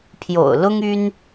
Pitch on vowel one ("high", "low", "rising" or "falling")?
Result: low